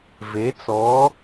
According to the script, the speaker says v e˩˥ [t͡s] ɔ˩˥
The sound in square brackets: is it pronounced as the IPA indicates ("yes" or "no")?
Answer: yes